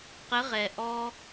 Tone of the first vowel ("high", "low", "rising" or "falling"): rising